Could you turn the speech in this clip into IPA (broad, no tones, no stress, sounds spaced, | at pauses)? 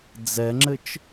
d͡z ɛ ŋ͡ǁ ɘ t͡ʃ